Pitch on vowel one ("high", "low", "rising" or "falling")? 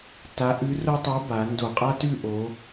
rising